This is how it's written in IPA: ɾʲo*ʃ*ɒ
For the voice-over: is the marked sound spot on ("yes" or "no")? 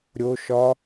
yes